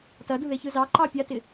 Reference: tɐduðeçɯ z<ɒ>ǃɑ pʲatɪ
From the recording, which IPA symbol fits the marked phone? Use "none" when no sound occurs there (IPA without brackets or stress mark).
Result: ɑ